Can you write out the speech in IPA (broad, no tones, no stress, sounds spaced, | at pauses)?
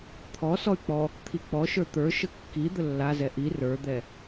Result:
t̪ʰ ɔ s ɔ y̯ k͡p ɔ | t̪ʰ i k͡p ɔ ʃ ə˞ t̪ ə˞ ʃ ə kː i d̪ ə lː a z ɛ ʔ i r ə˞ d̪ ɛ